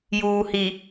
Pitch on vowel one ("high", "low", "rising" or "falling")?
low